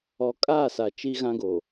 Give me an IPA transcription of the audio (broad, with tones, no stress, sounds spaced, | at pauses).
ɔ˨ kʼ aː˦˨ s a˨ t͡ʃ i˦ ɣ ã˦ ɡ o˨